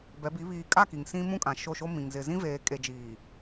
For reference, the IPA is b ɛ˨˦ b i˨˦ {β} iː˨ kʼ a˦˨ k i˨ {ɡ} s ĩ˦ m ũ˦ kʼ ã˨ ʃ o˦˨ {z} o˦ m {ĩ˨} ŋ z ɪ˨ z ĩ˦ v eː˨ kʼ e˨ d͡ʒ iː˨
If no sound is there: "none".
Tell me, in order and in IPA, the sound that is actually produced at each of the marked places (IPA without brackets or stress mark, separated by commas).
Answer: β, ŋ, ʃ, ĩ˨